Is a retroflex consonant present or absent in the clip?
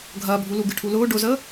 present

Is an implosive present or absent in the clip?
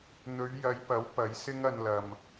absent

